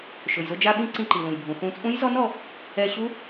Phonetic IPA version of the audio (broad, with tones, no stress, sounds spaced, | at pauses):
ʃ ʊ˩ j z ʊ˧ d͡ʒ a˧ ɓ ĩ˧ ǀ ĩ˧ ǃ i˩ l ũ˩ j bʱ ũ˩ θ ũ˧ t͡sʼ ũ˦˥ j z ɔ˦˥ n ɔ˧ | ɛ˧ ɕ u˦˥